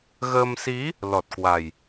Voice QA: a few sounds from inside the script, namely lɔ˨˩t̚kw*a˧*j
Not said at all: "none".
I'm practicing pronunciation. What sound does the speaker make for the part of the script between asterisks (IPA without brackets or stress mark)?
a˨˩